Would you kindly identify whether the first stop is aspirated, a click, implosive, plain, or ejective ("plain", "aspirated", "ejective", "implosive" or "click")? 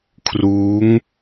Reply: aspirated